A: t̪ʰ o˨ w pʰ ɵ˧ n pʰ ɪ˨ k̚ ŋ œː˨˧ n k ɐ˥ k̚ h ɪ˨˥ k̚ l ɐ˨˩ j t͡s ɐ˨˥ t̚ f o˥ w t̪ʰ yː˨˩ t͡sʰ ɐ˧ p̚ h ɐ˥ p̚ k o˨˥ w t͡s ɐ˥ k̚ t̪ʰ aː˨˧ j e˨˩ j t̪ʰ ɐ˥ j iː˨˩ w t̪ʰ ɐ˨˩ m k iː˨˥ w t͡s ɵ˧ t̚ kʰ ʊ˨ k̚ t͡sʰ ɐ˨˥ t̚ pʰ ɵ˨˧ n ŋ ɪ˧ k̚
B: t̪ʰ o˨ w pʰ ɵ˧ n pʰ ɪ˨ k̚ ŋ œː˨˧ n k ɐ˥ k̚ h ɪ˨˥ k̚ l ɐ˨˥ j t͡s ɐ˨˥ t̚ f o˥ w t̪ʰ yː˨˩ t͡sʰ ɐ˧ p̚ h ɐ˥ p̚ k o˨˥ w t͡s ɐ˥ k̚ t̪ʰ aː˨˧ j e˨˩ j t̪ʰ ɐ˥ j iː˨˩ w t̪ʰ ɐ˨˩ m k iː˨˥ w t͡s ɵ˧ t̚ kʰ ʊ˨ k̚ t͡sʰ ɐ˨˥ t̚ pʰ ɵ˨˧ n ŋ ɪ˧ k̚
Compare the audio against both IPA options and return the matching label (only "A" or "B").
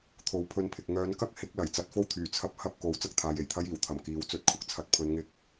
A